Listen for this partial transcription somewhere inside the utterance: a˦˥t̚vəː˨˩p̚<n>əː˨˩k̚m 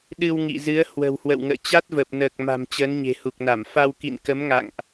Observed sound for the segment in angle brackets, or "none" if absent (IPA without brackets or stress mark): n